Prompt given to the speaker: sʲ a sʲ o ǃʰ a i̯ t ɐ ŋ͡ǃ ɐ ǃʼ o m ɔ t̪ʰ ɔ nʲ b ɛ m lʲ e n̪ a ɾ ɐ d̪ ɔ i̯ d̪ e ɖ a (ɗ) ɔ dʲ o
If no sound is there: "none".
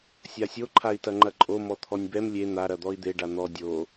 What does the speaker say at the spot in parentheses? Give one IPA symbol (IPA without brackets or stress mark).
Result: n̪